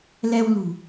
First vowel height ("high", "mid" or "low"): mid